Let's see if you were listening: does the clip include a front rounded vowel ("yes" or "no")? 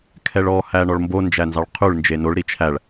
no